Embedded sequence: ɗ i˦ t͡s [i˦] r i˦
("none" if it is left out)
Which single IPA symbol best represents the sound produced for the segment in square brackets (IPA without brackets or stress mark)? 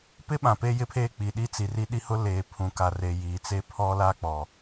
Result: i˨